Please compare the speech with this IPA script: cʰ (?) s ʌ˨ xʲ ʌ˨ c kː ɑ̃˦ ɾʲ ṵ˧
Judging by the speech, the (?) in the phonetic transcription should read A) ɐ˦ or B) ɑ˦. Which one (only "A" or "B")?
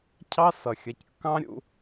B